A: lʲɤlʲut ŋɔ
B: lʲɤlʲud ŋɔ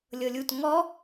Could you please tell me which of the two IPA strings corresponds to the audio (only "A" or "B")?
A